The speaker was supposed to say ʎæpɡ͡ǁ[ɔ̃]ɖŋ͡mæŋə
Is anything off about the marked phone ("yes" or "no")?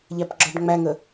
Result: yes